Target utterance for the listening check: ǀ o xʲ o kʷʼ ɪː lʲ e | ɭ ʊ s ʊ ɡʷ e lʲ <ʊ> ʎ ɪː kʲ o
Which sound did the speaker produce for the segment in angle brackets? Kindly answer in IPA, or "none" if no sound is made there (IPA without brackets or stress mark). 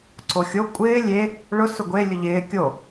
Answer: ʊ